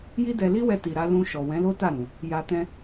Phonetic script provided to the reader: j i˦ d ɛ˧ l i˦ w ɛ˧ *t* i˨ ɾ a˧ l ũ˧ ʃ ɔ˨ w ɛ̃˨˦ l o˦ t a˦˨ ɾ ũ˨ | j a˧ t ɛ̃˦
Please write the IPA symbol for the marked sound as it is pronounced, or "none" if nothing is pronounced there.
t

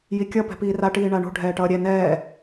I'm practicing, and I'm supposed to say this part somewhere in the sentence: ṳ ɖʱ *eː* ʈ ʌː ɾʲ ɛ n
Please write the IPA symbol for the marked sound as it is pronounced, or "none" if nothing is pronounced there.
ɛː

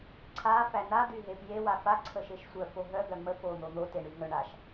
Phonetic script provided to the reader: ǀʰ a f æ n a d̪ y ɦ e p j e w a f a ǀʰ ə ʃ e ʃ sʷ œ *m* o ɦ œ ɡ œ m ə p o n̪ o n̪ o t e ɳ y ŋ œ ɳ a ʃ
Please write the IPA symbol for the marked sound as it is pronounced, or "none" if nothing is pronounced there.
f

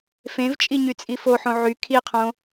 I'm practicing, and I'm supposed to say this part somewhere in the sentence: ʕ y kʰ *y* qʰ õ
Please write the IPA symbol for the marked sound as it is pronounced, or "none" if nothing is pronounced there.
i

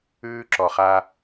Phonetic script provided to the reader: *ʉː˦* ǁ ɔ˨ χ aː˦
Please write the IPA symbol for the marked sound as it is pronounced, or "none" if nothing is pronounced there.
ʉː˦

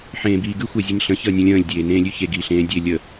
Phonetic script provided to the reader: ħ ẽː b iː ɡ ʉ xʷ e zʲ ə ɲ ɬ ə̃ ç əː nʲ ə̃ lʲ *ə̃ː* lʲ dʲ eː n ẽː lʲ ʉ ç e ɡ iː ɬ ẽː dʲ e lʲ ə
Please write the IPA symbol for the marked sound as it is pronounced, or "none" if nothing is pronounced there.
ə̃ː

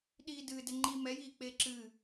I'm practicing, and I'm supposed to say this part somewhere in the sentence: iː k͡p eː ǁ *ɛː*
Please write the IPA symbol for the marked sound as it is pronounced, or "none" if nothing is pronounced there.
ɨː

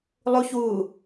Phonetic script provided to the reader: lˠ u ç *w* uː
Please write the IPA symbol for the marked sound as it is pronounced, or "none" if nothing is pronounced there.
w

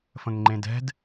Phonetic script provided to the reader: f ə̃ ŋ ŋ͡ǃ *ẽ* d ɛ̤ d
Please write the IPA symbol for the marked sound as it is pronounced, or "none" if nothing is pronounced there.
ẽ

